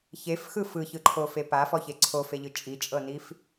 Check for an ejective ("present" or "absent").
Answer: present